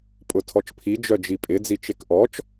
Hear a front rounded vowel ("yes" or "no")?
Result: yes